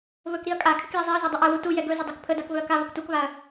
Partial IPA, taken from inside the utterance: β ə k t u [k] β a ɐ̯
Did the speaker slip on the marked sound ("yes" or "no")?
no